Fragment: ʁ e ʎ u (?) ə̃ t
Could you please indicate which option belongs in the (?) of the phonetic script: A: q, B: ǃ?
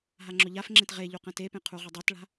A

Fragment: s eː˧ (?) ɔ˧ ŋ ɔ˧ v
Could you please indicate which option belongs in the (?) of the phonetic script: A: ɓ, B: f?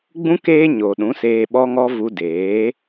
A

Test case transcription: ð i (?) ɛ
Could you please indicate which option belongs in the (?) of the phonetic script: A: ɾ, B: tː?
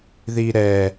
A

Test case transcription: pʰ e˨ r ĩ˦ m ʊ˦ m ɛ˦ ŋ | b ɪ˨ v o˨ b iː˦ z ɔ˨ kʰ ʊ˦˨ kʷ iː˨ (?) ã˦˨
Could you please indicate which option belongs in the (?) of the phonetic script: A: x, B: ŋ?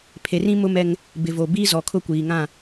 B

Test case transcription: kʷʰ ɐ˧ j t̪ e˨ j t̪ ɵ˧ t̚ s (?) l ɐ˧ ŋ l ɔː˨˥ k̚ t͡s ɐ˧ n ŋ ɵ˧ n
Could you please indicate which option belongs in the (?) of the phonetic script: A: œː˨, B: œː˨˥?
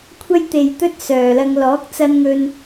A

